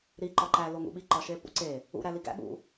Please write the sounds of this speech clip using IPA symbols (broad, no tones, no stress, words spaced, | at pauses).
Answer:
ɾi ǃɒǃæ loŋṵɓi ǃɒʃepṵǀe | ṵ ɾæliɡæ̰ ɠṵ